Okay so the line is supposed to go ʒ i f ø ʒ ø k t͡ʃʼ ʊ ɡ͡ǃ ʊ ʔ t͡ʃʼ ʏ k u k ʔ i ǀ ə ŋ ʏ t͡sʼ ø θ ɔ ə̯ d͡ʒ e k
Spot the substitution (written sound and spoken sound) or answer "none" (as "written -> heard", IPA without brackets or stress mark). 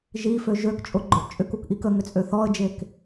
ǀ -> k